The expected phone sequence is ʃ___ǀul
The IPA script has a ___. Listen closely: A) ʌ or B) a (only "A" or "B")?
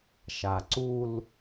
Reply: B